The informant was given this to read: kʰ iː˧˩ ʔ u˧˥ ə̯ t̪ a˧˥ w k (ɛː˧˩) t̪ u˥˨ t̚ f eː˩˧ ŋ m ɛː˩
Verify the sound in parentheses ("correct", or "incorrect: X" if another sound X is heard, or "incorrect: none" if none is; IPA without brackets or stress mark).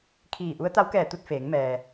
correct